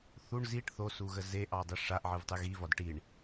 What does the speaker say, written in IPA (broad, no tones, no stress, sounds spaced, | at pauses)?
θ u ɳ z i ʈ θ o s u ɣ ə z e ʔ ɑ dˤ i ʂ a ʔ ʕ ɨ v tˤ ɨ ɣ i v ɒ d ʈ i ɳ